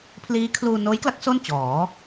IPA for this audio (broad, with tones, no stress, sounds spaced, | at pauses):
pʰ l iː˦˥ kʰ l uː˧ n oː˦˥ j k l a˦˥ k̚ s o˥˩ n t͡ɕ ɔː˩˦